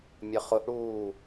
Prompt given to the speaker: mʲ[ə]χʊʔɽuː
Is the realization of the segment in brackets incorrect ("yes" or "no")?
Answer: no